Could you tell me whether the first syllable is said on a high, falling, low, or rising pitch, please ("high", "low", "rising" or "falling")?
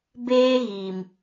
high